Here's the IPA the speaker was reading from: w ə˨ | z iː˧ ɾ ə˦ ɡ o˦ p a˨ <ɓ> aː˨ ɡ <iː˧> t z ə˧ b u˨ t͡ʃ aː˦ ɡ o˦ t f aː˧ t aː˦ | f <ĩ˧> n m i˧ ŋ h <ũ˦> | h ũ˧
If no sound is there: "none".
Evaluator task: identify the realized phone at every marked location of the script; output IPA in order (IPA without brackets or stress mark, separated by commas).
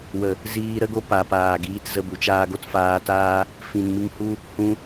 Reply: p, iː˧, ĩ˨, u˦